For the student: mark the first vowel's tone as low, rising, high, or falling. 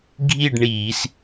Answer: falling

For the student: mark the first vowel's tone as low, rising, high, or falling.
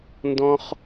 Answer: high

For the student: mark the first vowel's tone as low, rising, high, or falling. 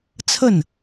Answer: falling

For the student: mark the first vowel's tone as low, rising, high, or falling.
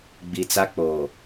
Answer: low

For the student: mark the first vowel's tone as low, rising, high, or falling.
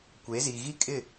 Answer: rising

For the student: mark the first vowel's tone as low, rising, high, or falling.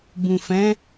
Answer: low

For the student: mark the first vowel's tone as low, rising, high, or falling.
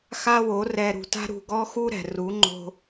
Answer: high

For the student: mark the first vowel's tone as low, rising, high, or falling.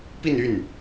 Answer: falling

